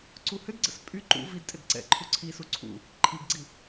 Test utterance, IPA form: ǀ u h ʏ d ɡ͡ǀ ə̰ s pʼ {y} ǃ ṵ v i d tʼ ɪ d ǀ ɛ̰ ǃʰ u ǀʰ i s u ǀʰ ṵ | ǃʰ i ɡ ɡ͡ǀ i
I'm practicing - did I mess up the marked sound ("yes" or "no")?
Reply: no